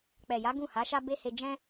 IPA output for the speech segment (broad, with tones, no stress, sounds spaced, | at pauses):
k͡p ɛ˨ j a˨˦ ɡ ũ˦˨ h a˨˦ ʃ a˦ b e˦ h e˧ d͡ʒ ɛ̃˧